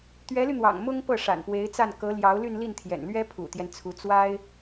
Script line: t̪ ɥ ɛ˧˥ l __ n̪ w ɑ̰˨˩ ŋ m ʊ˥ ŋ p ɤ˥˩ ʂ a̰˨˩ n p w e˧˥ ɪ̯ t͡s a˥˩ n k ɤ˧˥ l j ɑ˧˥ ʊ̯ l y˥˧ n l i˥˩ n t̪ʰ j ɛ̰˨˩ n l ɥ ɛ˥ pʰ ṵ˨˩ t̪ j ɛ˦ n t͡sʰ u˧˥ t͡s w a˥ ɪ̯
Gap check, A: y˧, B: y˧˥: A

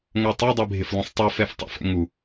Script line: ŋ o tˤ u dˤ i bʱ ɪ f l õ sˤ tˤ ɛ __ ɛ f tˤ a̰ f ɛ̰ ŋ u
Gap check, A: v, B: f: B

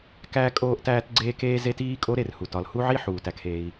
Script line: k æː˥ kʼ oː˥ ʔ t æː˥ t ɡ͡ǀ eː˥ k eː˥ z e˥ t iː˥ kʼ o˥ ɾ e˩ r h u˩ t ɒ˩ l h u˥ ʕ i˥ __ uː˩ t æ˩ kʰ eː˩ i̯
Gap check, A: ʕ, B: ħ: B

